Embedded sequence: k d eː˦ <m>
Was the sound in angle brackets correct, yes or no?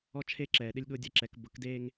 no